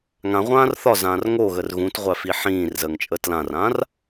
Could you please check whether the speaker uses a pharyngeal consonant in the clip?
yes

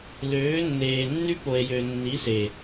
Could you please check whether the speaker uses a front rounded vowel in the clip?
yes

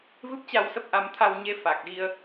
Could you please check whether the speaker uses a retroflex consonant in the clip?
no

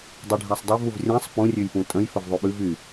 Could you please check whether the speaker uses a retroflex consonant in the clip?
yes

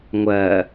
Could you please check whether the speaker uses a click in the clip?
no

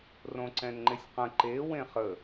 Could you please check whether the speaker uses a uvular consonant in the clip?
yes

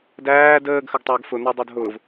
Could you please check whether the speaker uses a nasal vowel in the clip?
no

